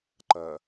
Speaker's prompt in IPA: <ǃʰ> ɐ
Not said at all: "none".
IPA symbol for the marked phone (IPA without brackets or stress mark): ǃ